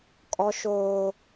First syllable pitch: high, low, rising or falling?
high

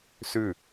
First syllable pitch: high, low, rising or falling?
falling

